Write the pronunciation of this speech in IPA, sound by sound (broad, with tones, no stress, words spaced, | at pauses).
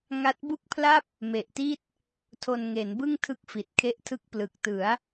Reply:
ŋa˦˥t̚bu˥˩k̚pʰla˥˩p̚ | me˨˩ʔti˦˥t̚ | tʰo˧nŋe˩˦n bɯ˥˩ŋtʰɯ˦˥k̚fi˨˩t̚kʰe˦˥ʔ tʰɯ˦˥k̚plɯ˨˩k̚tɯ˩˦a̯